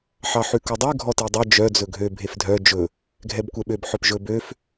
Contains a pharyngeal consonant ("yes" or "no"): yes